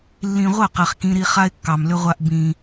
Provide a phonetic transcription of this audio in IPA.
lː ĩ˨ ʁʷ ə˦˨ q ɛ˨ χ k ĩ˦ ɾ i˦ χ a˦ ɪ̯ kː ɑ˨ m l ʏ˦ ʁʷ a˦ ʔ b ĩ˦

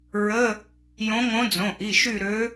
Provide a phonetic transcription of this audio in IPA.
ɹ ə˧˥˧ | j õ˧˥ ŋ õ˧˥ d͡z õ˩˧˩ ʔ i˩˧˩ ʃ y˦˨ ɾ ø˧˥

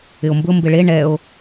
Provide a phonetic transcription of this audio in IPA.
ɪ o̯ m b ʊ m b ɪ ɭ e ɳ ɛ o̯

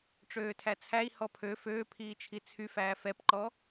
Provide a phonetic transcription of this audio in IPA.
ʈ͡ʂ øː tʰ æ t͡sʰ æ i̯ h ɔ pʰ ø f øː pʰ iː t͡ʃʰ i t͡sʰ y f æː f ɛ p ǃ ɔ

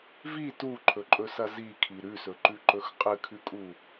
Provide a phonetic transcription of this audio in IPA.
v i t u ǃʰ ɵ ǃʼ ɵ s ɐ z i kʰ i ɾ ʉ s ɵ ǃ ʉ ǃ ɵ x qʼ ɨ kʰ ʉ kʼ u

